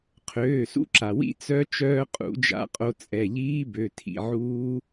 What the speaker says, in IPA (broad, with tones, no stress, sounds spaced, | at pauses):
qʰ øː˩˧˩ s ṵ˦˥ ǁ a˩ w ḭ˦˥ t͡s œ˦˥ t͡ʃ œː˧ qʼ ṵ˧˩˧ d͡ʒ a̰˧˩˧ qʼ o˧ t͡sʼ ɛ˩˧˩ ʎ iː˦˥ b ø˩˧˩ tʰ ḭ˩˧˩ ʕ uː˦˥